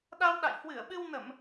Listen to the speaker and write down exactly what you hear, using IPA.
ɗ a˧ w ɗ a̰˧˨ j h w ɨ˧˩ ə̯ ɓ ɨ˧ w n ə˧˩˨ m

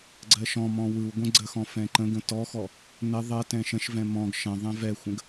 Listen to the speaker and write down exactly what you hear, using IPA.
ɡ͡ǀ ɜ ʃ ɔ̃ m ɔ̃ w ɯ w ɡʷ ɛ̃ ɡ͡ǀ ə x ɔ̃ f ɛ̃ ǃ ə̃ ɡ ə̃ t ɔ x ɔ | n ə ðˤ ɜ t ɛ̃ ʃ ə̃ ʃ v ɛ̃ m ɔ̃ ɡ ʃ ə̃ ðˤ ɛ̃ v ɛ xʷ ə̃ ɡ

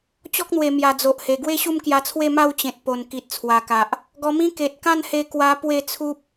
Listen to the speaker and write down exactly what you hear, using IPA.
t͡ɕ ɔ˦ k̚ n̪ w e˨˩ m j a˨˩ d͡z o˨ ʔ h e˨˩ ɡ w e˥˧ ɕ u˥˧ m k j a˧ t͡sʰ w e˥˧ m a˥˧ w t͡ɕ ẽ˨ t̚ p o˨˩ n k i˨ t̚ t͡sʰ w a˨˩ k a˨ ʔ | ɡ ɔ˧ m ĩ˦ k e˨ t̚ k ã˥˧ n h e˧ k w a˧ p w e˥˧ t͡sʰ u˦ p̚

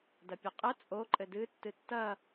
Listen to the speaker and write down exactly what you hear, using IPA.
d ɐ pʲ ɛ qʼ ɘ t͡sʼ o ǃʼ ɘ d ɨ tː ɨ tː ɐ

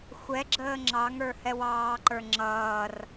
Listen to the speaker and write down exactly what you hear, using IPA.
xʷ ɛ ɡ͡ǁ əː ŋ͡ǁ ɑ ŋ ə˞ h ɛ w ɑː ǃ ə˞ ŋ͡ǁ ʌː r

